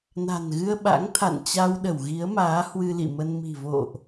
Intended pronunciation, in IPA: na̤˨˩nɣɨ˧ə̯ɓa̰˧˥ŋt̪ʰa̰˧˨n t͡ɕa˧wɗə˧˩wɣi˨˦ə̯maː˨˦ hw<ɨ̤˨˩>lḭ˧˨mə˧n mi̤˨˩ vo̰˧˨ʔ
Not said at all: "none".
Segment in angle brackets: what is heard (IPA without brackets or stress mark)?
ɨ˧